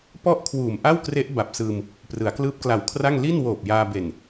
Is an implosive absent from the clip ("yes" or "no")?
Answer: yes